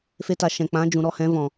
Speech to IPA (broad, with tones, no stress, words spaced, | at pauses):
fe˧ta˨ ʃɛ̃˨k͡pã˨˦d͡ʒũ˨ ɾɔ˦˨hɛ̃˨˦vɔ̃˨